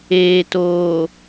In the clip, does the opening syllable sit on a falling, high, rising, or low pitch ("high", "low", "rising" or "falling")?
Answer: low